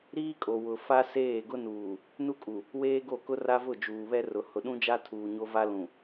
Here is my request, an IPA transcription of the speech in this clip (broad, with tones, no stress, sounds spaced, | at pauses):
ɾ iː˦ kʼ o˨ w ʊ˨ f a˦ s eː˦˨ ɡ ʊ˦ n uː˨ | n u˦ kʼ u˨ | w eː˦ ɡ o˦˨ k ʊ˦ r a˦ v ʊ˦˨ d͡ʒ uː˨ β ɛ˦ r ʊ˨ h ʊ˨ ɗ ũ˦ d͡ʒ a˦ tʰ uː˨ ɲ o˦ v a˦ l ũ˨